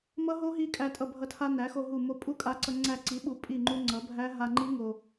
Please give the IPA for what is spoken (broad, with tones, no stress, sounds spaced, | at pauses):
m ʌ˦˥ ɦ o˦˥ ɦ i˦˥ kʼ æ˧ tʼ ʌ˧˩ bʱ ʌ˧˩ tʰ a˧ n æ˩˥ x o˧ ɦ u˧˩ m o˧ pʼ u˦˥ kʼ a˧ ǀ ʌ˧ ŋ͡ǀ æ˧˩ ǀ i˩˥ ɓ u˩˥ pʼ i˧˩ ŋ͡ǃ u˧ ŋ͡ǀ ʌ˩˥ bʱ æ˦˥ ɦ a˧ ŋ͡ǃ i˦˥ ŋ o˧